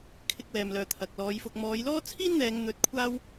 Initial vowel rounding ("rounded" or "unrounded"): unrounded